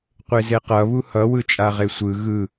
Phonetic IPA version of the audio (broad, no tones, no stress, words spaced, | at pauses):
qʷezeqʌ βuhʌ wɯt͡ʃʼaʁesʷɯ ɣɯ